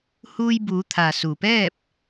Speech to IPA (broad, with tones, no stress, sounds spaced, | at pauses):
h uː˧ j b uː˩˧ t̪ʰ a˩ s u˩ p ɛː˥˨ p̚